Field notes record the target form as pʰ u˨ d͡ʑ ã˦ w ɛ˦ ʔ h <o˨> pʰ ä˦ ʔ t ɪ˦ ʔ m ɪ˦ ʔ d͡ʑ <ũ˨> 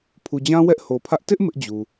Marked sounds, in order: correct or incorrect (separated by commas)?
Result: correct, incorrect